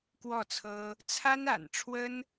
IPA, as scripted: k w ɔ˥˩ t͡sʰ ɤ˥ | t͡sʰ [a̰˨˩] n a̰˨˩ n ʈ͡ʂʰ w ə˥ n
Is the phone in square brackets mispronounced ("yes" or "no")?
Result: yes